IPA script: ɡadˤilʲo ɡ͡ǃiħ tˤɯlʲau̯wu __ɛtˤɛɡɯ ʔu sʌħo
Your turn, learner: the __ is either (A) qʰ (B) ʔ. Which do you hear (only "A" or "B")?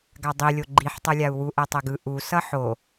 B